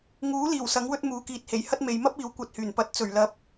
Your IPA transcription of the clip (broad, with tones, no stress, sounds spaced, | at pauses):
ŋ uː˨˥ l iː˨˩ w s ɐ˨˥ ŋ w ɵ˥ t̚ m uː˨˧ k iː˨ t̚ h e˨˩ j h ɐ˥ t̚ m e˨˧ j m ɐ˥ p̚ iː˨˥ w kʷ ɐ˧ t̚ h yː˨˩ n p ɐ˧ t̚ t͡s ɵ˨˩ ɥ l ɐ˨˥ p̚